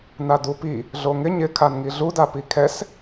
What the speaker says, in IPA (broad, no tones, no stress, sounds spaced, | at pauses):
n a d u p i | ɮ o ŋ ɪ ɲ ɪ kʰ a n ŋ i ɮ u d a p i kʰ ɛ s